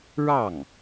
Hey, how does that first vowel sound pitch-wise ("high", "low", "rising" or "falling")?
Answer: falling